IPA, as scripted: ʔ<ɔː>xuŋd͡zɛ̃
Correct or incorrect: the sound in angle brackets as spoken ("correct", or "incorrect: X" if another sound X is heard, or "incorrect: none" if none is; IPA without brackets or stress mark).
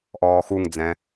correct